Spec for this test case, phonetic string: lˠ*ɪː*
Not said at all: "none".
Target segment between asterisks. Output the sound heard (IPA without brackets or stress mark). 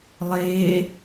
ɪː